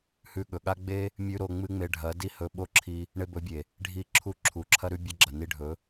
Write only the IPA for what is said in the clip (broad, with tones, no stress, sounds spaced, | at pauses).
h ʉ˧ ɠ ɵ˨ ɠ a˦ ɡ͡b e˦ | mʲ ʉ˦ ɾ o˧ ŋ͡m ɨ˦ ŋ͡m e˧ ɖʱ ɐ˨˦ d i˦ h ɵ˧ ɓ o˦ ǁʰ i˧ | ɳ e˧ b ɵ˨˦ bʲ e˨ | ɖʱ i˦˨ ǁʰ u˦˨ ǁʰ u˨ ǁʰ ɐ˦ ɾ ʉ˦ bʲ ɐ˦ ɡ͡ǁ ɐ˨ n i˧ ɖʱ ɵ˨˦